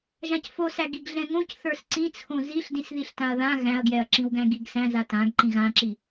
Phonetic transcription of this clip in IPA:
ʒ ã c f o s æ ɡ i ɡ ɮ ɛ̃ ŋ õ c θ ə˞ s ǀ ĩ t͡sʰ õ z i ɬ d ĩ s ð i ɬ t ã ɐ̯ ð ã ɣ æ̃ ɐ̯ ɡ j ɛ ɐ̯ ǁ ĩ w ɡ æ̃ ɡ i ɡ s æ̃ z a t ã ɡ ǃ ĩ ɣ ã ǁ i

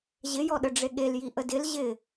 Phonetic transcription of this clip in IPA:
ʑ ɪ j ɔ ɗ ə ɖ͡ʐ e ɠ e l j i ʔ ə d ɪ l ʑ ɪ

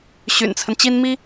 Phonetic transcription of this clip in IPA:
ɕ y̰˨˩ n t͡sʰ ə˦ n t͡ɕ i˥ n m i˥

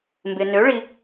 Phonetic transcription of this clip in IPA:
m b ɪ˨ n ø˨˥ ɭ i˨

